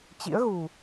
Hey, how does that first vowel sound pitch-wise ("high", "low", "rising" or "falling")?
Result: rising